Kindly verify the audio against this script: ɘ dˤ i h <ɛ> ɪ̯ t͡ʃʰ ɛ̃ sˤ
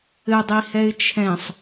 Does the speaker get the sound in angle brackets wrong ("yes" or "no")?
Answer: no